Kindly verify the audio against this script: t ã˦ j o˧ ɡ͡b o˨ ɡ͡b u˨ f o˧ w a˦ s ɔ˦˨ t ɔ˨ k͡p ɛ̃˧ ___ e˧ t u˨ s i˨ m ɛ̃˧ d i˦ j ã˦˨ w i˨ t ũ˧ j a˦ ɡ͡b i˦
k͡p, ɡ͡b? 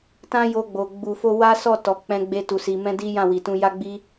ɡ͡b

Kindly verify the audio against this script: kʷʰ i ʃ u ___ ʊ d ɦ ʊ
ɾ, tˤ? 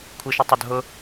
tˤ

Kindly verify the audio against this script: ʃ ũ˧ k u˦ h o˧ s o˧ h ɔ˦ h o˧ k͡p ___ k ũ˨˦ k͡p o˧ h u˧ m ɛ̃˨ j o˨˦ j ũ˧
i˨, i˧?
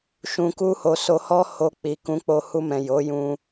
i˨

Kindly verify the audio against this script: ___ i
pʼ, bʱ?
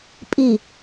pʼ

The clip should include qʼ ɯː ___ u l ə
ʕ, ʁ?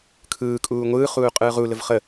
ʁ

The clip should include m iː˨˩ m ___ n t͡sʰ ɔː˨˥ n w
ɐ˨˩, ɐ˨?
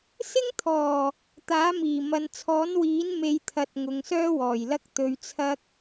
ɐ˨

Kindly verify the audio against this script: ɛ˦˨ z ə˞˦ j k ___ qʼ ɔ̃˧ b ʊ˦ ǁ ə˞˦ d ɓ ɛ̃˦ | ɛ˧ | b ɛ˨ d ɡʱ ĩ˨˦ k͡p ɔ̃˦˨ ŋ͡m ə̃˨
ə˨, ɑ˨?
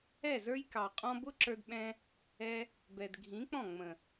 ɑ˨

